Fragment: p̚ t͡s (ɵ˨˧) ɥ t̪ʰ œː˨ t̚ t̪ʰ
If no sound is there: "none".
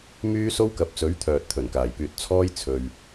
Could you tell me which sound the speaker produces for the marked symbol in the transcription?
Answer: ɵ˨˥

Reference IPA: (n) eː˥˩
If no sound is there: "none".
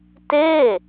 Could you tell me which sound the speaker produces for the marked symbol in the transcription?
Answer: t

